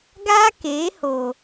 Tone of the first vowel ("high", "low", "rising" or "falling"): high